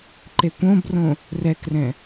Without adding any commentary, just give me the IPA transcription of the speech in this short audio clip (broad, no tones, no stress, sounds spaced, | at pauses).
ǃ e kʷ õ b r õ | r ɛ k r ɛ̃